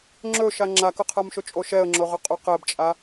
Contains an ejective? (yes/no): yes